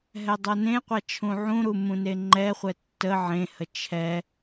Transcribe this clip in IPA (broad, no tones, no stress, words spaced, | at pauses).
ɦɛdˤɤnẽqʷa t͡ʃʰũʕũɾu mũneŋ͡ǃɛχʷɛ tːə ʕẽhə t͡ʃʰɛ